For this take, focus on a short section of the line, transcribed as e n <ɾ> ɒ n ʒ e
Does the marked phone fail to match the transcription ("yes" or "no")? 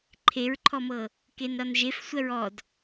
no